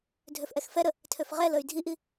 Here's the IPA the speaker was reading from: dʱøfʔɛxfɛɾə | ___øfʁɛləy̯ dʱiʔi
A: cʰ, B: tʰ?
B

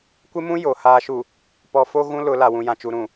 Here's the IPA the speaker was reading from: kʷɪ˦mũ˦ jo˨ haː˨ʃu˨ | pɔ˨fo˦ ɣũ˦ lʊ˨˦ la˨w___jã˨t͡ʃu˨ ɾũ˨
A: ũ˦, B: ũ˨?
B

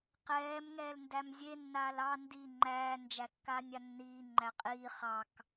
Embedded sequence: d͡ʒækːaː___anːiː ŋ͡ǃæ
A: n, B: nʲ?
B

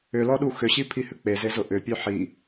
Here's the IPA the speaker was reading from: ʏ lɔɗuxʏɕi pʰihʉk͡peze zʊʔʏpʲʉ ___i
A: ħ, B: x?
A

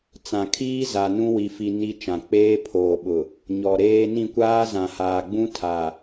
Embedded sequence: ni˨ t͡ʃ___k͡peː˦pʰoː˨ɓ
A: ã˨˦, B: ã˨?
B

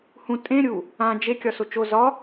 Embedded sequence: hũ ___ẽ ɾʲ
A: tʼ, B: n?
A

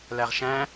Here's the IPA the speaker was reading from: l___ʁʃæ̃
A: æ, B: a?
A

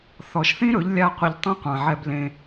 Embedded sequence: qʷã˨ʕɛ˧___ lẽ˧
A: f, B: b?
B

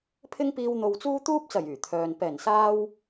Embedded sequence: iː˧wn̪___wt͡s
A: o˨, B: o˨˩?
A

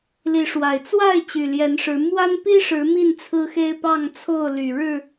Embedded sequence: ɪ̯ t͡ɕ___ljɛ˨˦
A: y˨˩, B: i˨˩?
A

